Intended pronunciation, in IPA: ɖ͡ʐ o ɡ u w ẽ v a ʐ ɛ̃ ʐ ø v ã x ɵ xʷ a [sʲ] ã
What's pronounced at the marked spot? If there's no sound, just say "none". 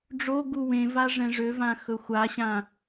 ɕ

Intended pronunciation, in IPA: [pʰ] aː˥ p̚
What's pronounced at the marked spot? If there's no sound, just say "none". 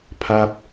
pʰ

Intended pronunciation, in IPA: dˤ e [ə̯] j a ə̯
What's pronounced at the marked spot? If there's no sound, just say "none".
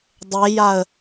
none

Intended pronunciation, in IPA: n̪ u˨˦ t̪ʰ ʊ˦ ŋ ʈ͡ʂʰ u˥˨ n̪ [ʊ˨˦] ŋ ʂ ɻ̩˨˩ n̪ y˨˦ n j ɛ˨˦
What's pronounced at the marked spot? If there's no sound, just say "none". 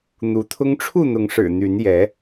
ʊ˨˦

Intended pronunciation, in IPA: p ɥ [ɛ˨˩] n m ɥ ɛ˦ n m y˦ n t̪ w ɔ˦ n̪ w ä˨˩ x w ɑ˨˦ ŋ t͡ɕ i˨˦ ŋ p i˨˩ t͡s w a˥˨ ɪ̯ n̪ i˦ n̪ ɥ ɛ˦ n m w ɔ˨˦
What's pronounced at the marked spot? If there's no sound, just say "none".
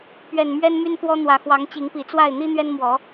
ɛ˨˩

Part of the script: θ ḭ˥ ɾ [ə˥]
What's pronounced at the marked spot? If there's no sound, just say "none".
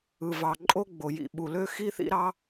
ɑ˥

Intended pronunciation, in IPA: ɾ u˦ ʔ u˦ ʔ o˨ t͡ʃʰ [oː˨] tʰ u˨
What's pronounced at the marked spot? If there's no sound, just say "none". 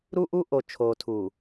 oː˨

